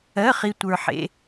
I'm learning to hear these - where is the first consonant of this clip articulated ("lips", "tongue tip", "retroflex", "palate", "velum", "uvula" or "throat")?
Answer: uvula